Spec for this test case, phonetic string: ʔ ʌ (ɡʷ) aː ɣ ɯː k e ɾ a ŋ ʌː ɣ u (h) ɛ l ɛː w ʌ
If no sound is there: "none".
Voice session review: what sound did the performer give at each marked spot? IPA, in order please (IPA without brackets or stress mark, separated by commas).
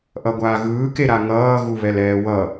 ɡʷ, β